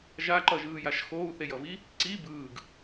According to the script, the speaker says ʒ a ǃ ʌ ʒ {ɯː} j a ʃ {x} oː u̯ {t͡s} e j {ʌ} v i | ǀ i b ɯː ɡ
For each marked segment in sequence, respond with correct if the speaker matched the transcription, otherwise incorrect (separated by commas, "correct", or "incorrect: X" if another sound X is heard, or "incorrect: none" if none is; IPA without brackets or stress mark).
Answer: correct, correct, incorrect: θ, correct